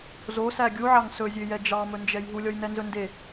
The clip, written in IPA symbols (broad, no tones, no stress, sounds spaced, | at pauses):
z o s æ ɡʲ u ʕ ɑ ŋ s ɵ zʲ ø j ɛ d͡ʒ ɑ m ɵ n d͡ʒ ɛ j ɦ u lʲ ɔ j n ɛ n z ɵ n d e